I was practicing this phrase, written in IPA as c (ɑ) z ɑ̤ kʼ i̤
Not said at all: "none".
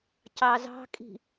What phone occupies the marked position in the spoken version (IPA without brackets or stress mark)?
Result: ɑ